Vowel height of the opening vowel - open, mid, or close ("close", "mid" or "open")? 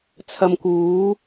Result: open